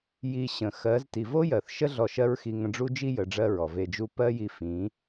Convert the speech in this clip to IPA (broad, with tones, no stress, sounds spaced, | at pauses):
j i˧ ɕ ə̃˨ x ɜ˨˦ z t i˨ v o˦ j ɜ˨ θ ʃ ə˦ ɮ ɔ˧ ʃ ɜ˦ ɹ x i˧ ŋ ə̃˧ ɖ͡ʐ u˦ d͡ʒ i˦ j ə˨˦ ɖ͡ʐ ɜ˦ ɹ ɔ˨ v e˧ d͡ʒ u˦ p ɜ˦ j i˧ f ĩ˨˦